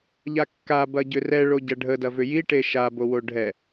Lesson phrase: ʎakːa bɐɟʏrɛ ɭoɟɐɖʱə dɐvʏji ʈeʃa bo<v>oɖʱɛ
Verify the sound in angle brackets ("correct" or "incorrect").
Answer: incorrect